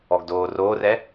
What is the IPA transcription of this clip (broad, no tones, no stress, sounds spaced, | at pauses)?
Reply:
ɔ ɡ d oː r oː r ɛ